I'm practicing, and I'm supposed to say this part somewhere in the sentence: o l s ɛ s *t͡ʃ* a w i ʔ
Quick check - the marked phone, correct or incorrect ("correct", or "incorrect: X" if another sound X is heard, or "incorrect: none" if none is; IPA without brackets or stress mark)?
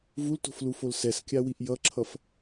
incorrect: kʲ